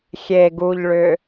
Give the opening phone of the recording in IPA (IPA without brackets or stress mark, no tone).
xʲ